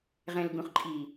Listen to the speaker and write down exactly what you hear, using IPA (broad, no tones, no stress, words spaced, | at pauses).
ʁɛ̃l ɡũχǃʼiː